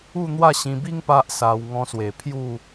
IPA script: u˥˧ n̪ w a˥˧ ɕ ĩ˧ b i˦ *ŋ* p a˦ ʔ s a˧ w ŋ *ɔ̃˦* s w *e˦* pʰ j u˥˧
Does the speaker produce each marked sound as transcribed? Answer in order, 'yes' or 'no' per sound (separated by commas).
yes, no, no